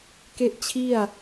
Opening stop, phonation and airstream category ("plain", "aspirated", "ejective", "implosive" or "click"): plain